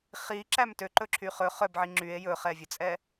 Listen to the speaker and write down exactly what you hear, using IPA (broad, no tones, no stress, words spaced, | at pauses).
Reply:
χiǁæm tøǃɵǁʰy χɵ χœbʕi ŋ͡ǁye̯ jɵχɛvʲɵt͡sʼɛ